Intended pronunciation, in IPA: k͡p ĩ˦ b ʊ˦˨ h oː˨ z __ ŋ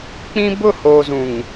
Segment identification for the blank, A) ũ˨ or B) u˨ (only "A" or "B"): A